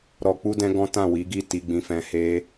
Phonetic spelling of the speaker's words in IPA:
ɾ ɔ˨ k͡p u˧ d ɛ̃˧ ɡ ɔ̃˦ t ã˦˨ w i˨˦ ɡ i˦˨ t i˧ ɡ͡b ĩ˧ f ɛ̃˧ h e˦

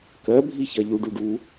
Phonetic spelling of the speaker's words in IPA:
k ɜ bʱ i ç ɐ ʎ u ɖ u ɖ u

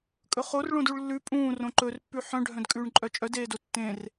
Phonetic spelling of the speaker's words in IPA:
kʼ ɵ χ o r ɭ õ d u ɭ lː ʉ pʼ ũː r õ ǃ ɵ r pː ʉ ħ œ̃ ɖʱ œ̃ d kʼ ʉː ɳ ǃʼ œ t͡ʃʼ œ d eː d o tː ẽ r

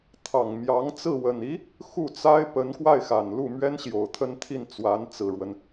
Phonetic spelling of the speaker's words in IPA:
t̪ʰ ɑ˨˩ ŋ m j ɑ˧˥ ŋ t͡s ɹ̩˥˩ w ə˨˩ n i˧˥ | x u˥˩ t͡s a˥ ɪ̯ p ə˧˥ n k w a˥˩ ɪ̯ x a˨˩ n l u˥˩ m ɥ ɛ˥ n ɕ j o˨˩ ʊ̯ t̪ʰ ə˥˧ n t̪ʰ i˥˩ n t͡s w a˧˥ n t͡s ɹ̩˨˩ ɻ w ə˦ n

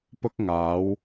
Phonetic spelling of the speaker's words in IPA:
p ʊ˥ k̚ ŋ aː˨˥ w

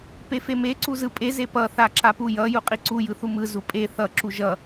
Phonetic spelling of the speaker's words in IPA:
p e f e m e ǀ u z ɯ pʼ e z e p ʌ θ a ǁ a p u j ʌ j u qʼ i ǀ u j ɯ θ u m ɯ z u pʼ e θ ʌ ǁ u ʒ ʌ

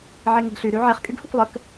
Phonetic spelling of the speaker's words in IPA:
ʕ e ŋ e ɡ ɬ y ɾ y ʕ e χ kʼ y ɡ h u kʷ lˠ ə k

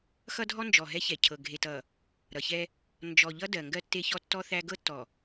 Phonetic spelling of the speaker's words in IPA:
x ʌ˦ dʱ ɔ˦ n d͡ʒ ɔ˨ ɦ ɛ˦ ç ɛ˨ cʰ ɤ˨ ɡʱ e˨ t ʌ˨ | ɾ ʌ˨ ç ɛ˦ | n d͡ʒ ɔ˨ ʎ ʌ˦ d ɜ˨ ŋ ɡ ɜ˦ tː e˦ ç ɔ˦ tː ɔ˦ θ æ˦ ɡ ɤ˦ tː ɔ˨

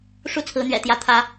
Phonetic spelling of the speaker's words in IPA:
ʂ u˥˩ t͡sʰ ɹ̩˧˥ n̪ ɥ ɛ̰˨˩ t̪ j ä˧˥ t̪ʰ ä˧˥

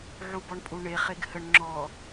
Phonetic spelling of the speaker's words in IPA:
ʕ u b ɔ ɳ pʼ u ɳ e χ e ɡ h ə ɳ ŋ͡ǁ ɔ

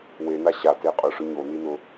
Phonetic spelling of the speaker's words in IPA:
w e n a ɕ a t e qʼ ʊ ʂ ʊ ɲ o n i n ʊ

